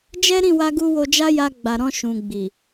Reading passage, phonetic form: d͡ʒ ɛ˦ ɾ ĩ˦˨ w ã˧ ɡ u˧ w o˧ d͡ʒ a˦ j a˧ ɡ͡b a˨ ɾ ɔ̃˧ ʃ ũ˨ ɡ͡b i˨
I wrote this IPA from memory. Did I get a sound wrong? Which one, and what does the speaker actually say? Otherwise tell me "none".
ã˧ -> a˧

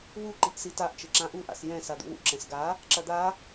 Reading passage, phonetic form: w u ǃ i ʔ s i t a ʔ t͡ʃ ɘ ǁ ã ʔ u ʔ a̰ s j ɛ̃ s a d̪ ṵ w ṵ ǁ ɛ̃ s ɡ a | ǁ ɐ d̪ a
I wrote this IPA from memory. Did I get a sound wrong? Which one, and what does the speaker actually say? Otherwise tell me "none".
none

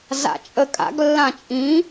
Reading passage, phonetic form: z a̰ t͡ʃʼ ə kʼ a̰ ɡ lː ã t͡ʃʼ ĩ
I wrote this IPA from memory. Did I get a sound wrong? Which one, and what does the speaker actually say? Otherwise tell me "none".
none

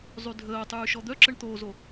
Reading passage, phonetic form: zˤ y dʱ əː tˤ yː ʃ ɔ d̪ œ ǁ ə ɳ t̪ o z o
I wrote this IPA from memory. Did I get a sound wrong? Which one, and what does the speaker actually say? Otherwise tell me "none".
none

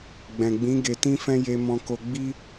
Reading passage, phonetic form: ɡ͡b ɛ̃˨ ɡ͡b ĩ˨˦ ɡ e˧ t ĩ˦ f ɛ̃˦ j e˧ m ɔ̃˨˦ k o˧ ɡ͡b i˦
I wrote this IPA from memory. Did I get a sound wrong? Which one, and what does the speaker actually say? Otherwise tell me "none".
ɔ̃˨˦ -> ɔ̃˧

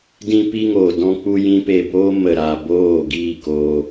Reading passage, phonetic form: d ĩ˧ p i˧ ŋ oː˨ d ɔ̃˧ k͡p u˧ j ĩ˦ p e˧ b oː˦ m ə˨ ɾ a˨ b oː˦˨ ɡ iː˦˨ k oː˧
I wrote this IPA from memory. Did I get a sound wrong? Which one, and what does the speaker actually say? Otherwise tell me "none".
none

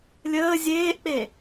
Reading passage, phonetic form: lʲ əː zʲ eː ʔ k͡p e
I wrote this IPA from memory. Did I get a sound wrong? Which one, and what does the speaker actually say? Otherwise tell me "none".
none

